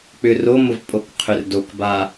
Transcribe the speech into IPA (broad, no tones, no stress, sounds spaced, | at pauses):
k͡p ʏ r o m ʊ v pʼ o k qʰ ʏ r d o k b a